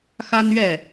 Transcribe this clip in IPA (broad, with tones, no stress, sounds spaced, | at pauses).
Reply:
x a˥ n ɥ ɛ˥˩